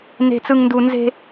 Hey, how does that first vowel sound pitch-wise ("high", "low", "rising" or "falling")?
high